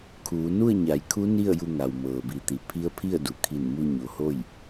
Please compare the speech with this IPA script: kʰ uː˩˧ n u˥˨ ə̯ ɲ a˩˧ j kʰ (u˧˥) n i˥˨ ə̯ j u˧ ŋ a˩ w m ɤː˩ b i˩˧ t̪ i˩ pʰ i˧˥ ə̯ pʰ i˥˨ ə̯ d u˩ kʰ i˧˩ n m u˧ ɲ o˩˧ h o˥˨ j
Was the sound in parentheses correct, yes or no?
yes